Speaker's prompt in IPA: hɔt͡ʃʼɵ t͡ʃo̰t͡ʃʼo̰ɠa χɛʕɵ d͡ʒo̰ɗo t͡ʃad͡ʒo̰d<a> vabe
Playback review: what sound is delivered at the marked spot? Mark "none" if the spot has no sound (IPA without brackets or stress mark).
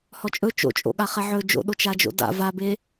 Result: a̰